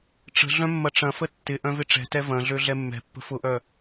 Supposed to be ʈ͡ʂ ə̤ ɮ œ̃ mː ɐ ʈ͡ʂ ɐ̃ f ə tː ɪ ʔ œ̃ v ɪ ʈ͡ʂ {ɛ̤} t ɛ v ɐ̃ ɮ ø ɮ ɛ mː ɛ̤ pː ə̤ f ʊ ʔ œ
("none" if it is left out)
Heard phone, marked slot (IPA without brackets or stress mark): ɛ̤